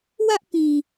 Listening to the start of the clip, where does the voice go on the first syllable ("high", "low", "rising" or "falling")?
high